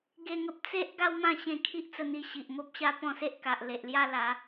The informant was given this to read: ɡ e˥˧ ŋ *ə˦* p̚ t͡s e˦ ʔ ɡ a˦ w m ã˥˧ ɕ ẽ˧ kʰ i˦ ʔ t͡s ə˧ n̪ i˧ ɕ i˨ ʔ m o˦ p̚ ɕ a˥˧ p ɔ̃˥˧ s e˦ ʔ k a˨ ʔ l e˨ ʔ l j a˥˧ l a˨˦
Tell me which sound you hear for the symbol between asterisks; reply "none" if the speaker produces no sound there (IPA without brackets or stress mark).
ə˦